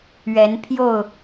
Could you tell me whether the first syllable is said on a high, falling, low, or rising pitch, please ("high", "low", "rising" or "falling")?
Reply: rising